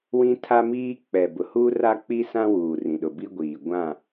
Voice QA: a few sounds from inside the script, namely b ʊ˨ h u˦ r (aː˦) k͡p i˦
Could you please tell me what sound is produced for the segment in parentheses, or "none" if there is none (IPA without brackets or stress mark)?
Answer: a˦